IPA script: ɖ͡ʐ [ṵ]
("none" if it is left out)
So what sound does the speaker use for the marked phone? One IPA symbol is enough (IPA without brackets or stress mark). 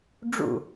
ṵ